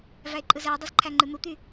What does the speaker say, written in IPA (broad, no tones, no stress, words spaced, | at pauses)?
væe̯ǃʼɯzæo̯dˤɯz ǃʰæŋ͡ǃɯn̪ut̪y